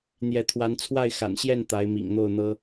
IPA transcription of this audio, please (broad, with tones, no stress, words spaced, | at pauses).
n̪jɛ˨˦t̪ʰwa˨˦n t͡sʰwa˥˨ɪ̯xa̰˨˩nɕjɛ˥˨n t̪a˨˦ɪ̯mḭ˨˩ŋn̪o˥˨ʊ̯n̪ɤ˦